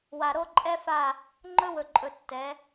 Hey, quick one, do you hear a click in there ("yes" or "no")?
yes